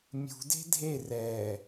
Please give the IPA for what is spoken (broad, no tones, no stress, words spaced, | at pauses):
mʲṳde̤ dʱe rɛ